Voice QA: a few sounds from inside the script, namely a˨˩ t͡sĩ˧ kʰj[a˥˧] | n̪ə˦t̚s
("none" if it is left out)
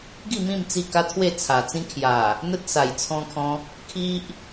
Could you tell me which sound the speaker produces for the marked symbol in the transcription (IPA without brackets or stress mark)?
a˨˩